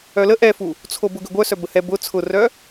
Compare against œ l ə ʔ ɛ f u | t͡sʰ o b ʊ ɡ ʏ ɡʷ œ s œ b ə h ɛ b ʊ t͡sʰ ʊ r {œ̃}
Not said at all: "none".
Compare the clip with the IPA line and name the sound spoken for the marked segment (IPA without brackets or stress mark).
œ